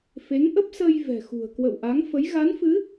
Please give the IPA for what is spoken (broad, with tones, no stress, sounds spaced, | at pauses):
f e˨˦ ŋ ʔ ə˦˥ p̚ s ə˧ j v ɛ̤˨˩ x ṳ˨˩ ə̯ k w ə̰˧˨ w ʔ a˨˦ ŋ f ə˨˦ j ɣ a˨˦ n f ɨ˨˦